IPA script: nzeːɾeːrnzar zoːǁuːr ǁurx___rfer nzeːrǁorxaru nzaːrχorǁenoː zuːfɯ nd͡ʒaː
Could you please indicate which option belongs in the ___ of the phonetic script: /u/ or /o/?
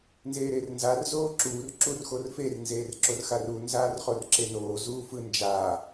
o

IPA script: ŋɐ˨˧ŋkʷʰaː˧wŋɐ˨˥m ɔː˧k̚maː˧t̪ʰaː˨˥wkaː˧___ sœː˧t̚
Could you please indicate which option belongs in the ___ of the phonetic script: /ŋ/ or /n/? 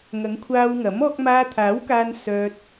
n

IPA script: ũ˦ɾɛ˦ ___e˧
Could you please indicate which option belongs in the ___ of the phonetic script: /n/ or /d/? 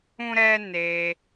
n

